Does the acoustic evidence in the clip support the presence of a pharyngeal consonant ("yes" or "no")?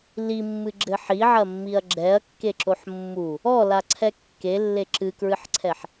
yes